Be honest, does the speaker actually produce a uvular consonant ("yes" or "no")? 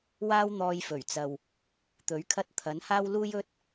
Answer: no